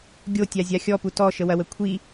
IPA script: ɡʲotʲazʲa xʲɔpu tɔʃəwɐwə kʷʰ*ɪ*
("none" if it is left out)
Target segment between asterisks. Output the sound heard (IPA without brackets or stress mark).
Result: i